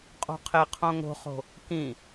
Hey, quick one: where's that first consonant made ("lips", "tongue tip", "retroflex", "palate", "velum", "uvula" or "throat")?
uvula